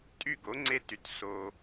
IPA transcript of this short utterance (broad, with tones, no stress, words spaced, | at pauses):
tʼy˥˩ɡo˩˥ ŋ͡ǀe˧ty˩t so˩